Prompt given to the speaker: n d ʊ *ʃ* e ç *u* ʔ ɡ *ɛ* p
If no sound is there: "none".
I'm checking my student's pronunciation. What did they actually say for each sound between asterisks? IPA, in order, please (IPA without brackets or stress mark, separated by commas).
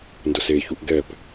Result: s, u, ɛ